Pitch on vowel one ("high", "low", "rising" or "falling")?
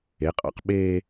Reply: rising